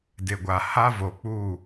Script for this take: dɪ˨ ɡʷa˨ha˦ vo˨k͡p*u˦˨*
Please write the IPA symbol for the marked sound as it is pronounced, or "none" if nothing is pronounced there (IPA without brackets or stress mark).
u˦˨